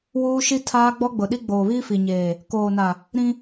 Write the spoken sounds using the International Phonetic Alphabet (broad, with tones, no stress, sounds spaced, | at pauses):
w uː˦ ʃ i˦ tʰ aː˦ ɡ͡b ɔ˦ ɡ͡b ʊ˨ ɗ i˦ ɡ͡b oː˨ β iː˦ f i˨ ɲ eː˨ | k oː˨ n a˨ | ɾ ĩ˦